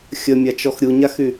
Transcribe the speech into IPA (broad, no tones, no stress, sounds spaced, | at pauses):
xʲ ə mʲ a t͡ʃ ɔ x ɾʲ u ɲ a x y